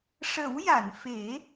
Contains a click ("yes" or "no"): no